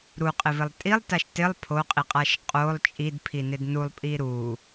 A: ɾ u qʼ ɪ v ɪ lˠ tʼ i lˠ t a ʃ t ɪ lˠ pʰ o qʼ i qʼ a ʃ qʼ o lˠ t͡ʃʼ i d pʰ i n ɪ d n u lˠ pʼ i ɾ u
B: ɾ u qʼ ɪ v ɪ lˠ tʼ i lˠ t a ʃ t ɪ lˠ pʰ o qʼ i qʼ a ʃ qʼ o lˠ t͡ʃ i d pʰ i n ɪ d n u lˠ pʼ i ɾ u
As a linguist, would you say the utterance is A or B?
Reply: A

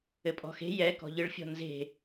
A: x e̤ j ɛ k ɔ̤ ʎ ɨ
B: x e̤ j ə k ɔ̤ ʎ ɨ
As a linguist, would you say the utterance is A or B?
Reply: A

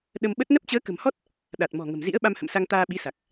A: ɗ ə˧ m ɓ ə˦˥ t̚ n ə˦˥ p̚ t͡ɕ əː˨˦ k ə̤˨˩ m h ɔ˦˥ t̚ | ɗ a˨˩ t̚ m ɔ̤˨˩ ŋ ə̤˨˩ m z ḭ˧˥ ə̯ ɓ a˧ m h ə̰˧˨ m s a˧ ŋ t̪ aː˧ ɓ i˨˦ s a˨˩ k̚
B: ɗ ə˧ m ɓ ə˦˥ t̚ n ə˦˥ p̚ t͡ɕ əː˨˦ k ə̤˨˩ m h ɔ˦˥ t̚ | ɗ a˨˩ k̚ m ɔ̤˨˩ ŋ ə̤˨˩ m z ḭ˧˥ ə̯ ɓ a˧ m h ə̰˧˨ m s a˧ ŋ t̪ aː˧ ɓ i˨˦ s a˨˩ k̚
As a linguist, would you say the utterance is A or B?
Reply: A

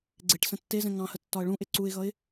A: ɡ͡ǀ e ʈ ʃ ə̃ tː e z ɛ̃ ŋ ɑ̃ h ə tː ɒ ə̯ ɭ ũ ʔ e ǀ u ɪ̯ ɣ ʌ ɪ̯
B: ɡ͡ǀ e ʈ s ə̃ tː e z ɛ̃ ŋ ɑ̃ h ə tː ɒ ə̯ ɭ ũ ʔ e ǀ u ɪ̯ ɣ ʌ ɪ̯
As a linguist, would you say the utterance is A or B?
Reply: B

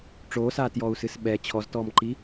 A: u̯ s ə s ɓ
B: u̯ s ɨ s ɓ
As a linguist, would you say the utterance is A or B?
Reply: B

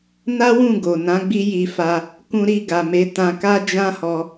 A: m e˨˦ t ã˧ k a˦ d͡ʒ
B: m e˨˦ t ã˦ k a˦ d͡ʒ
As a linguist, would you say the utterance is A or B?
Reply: A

